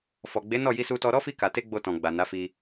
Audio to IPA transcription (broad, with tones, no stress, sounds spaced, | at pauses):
f ɔ˨ ɡ͡b e˨˦ n ɔ˦˨ j i˧ s u˧ t ɔ˧ ɾ ɔ˦ f i˧ k a˨ t e˧ ɡ͡b o˧ t ɔ̃˨ ɡ͡b a˨ n a˨˦ f i˧